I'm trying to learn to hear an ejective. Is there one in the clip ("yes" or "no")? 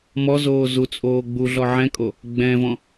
yes